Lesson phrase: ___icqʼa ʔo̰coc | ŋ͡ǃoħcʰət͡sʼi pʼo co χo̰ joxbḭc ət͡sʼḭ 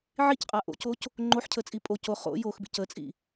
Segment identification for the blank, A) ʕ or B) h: A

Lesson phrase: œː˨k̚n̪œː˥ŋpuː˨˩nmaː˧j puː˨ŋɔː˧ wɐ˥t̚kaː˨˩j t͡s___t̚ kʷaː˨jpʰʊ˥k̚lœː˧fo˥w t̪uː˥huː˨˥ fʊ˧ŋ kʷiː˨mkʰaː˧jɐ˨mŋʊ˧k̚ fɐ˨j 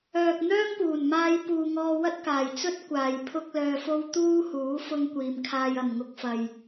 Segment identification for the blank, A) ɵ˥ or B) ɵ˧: A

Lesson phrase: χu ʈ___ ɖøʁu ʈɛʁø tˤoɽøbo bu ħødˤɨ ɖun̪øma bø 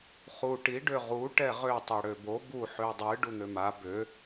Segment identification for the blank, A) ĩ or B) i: B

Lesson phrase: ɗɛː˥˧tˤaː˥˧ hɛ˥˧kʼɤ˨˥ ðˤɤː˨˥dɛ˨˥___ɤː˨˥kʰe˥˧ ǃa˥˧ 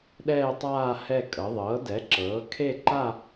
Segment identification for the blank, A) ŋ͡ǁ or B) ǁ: B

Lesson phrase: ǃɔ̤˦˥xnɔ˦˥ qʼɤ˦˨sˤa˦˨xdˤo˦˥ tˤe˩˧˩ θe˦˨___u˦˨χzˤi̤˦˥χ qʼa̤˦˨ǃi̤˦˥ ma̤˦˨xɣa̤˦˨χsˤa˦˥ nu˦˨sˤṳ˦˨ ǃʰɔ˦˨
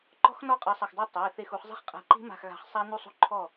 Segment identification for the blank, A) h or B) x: B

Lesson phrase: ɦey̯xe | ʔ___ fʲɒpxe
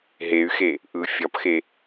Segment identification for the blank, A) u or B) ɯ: B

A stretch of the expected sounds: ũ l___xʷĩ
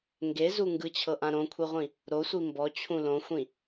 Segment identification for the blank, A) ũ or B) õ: B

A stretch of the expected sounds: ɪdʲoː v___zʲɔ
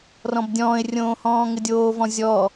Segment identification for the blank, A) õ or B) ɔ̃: B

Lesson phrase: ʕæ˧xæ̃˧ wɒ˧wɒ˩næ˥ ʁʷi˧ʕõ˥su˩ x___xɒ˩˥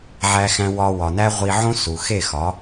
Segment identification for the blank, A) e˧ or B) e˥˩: B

